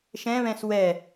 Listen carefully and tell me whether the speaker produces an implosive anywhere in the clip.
no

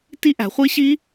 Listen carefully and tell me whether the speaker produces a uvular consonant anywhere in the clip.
yes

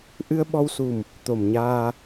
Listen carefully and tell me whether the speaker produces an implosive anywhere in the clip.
yes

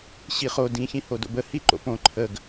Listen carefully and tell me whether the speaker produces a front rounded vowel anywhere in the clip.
no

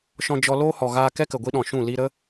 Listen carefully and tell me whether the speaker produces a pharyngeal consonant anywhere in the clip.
no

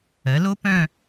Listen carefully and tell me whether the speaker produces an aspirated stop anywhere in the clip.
no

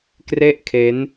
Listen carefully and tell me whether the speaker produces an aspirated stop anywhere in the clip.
yes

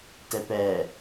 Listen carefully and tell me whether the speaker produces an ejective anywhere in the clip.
no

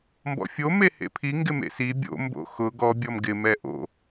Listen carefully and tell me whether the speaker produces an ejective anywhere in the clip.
no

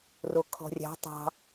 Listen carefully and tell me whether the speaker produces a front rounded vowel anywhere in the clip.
no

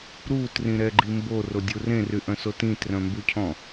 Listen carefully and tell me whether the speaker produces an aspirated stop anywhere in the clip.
yes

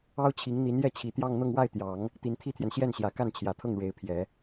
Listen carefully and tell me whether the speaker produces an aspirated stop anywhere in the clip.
yes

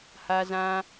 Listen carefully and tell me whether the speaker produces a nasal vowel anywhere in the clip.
yes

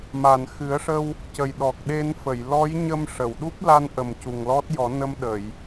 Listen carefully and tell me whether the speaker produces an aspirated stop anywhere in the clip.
no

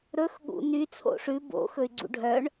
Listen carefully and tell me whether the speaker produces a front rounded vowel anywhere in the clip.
yes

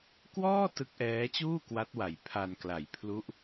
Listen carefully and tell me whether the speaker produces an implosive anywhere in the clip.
no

